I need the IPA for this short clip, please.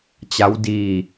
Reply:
t͡ɕ a˦˥ w d iː˧

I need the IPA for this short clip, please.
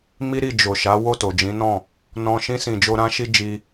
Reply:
m i˦ ɾ i˦˨ d͡ʒ o˨ ʃ a˨˦ w o˦˨ t o˨ d͡ʒ ĩ˨˦ n ɔ̃˦˨ | n ɔ̃˧ ʃ ĩ˧ s ĩ˨ d͡ʒ o˧ ɾ ã˦ ʃ i˦ d͡ʒ i˦

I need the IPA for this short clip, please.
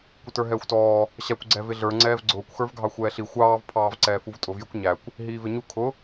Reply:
kʷ ɪ t ə˞ ɦ ɛː xʷ t ɔː | ɕ æ kʷ ɡ͡ǀ ɛ v ɪ ɮ ə˞ ŋ͡ǀ ɛː v ɡ͡ǀ ʊː kʷ x ə˞ v ɡʱ ɑ xʷ ɛː ɬ i xʷ ɑː v pʰ ɑː v ǀ ɛː f u v tʼ ʊ v j ɪ kʷ ɲ æ kʷ | ɦ iː v ɪ ɲ u kʰ ʊ

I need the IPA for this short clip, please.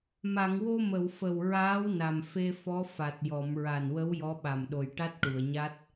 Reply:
m a˨˩˨ ŋ w o˧ m ə˨˩˨ w f ə˨˩ w ɹ aː˧˥ w n a˨˩ m f e˧ f ɔ˧˥ f a˨˩ t̚ j ɔ˨˩˨ m ɹ a˨˩ n w ə˧˥ w j ɔ˧˥ ɓ a˨˩ m ɗ o˨˩ j ʈ a˦˥ t̚ ʈ u˨˩˨ ə̯ ɲ a˦˥ t̚

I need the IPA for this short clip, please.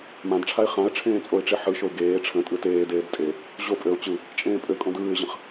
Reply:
m ã d ʈ͡ʂʰ a ɪ̯ χ ã ə̯ ʈ͡ʂʰ ẽː t͡sʼ o ɪ̯ ʈ͡ʂ e ħ ɯ ʃ o ɪ̯ ɡ eː ʈ͡ʂʰ ə̃ tʼ ɯ t eː d eː d tʼ e | ʑ o pʼ ø ʊ̯ t͡ɕ ɯ | t͡ʃʼ ẽː pʼ ø kʼ õ d ɯː ɪ̯ ʑ ə̃ χ

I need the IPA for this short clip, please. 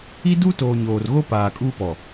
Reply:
i˦ d u˦ t oː˨ ɲ oː˨ r ɣ o˦ p aː˨ kʼ uː˦ p ɔ˨

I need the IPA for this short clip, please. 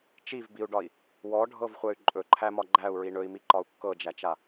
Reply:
t͡ʃ i v b i u̯ ɖ ɒ i̯ | w ɔ ɖʱ ɤ v χʷ ɛ y̯ ǃʼ ɵ ǃʰ æ m ɒ ɡ͡ǃ æ u̯ ɹ i ɳ ɵ i̯ m i ǃ ɒ u̯ kː ɤ d͡ʒ æ t͡ʃ a

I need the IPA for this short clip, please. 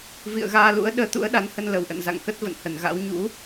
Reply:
v ḭ˧˨ ə̯ ɣ aː˧ l ṵ˧˥ ə̯ ɗ əː˧ t̪ ṵ˧˥ ə̯ ɗ a˨˦ n h ə˧ n l ə˧˩ w ʔ ə̰˧˨ n z a̰˧˨ ŋ k ə˦˥ t̚ v ə̰˧˨ n h ə˧˩ n ɣ a̰˧˥ w ɲ ṵ˧˥

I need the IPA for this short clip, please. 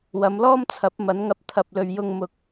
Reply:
w ɐ˨˧ m l ɔː˥ m t͡sʰ ɐ˨˥ p̚ m ɐ˨˥ n ŋ ɐ˧ p̚ t̪ʰ ɐ˨ p̚ l ɵ˨ ɥ j ʊ˧ ŋ m ʊ˨ k̚

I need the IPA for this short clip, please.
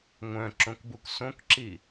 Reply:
ŋʷ œ̃ ǁ õ k b u k s õ k ǁ i

